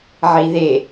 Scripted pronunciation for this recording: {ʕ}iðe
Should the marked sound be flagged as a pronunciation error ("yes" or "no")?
no